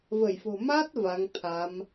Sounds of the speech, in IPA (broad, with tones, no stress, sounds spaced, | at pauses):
v ə˧˩ j f o̤˨˩ m a˦˥ t̚ v a˨˦ ŋ t̪ʰ a˨˦ m